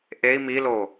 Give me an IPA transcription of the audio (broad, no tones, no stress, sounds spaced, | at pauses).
ʔ e i̯ m i l o